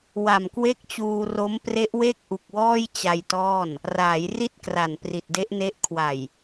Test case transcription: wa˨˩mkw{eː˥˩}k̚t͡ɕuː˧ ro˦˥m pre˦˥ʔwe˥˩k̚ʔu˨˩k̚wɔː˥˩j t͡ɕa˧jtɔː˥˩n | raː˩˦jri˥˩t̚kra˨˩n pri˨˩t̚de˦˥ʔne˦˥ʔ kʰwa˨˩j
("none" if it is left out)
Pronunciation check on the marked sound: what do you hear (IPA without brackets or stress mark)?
e˥˩